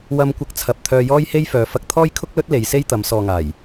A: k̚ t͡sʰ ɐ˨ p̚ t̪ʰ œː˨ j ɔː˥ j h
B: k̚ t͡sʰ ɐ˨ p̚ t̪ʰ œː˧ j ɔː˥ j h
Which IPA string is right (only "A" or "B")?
B